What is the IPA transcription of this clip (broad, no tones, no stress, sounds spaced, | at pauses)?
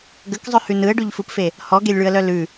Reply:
ɡ ə k zˤ œ h ʉ n ɯ ə̯ ɖ ʉ ʎ f ɯ p f e | h ɔ ɡ e lʲ ɭ ʉ ə̯ l œ l ʉ